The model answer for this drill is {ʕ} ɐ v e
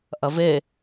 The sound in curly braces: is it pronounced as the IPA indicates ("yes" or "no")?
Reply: no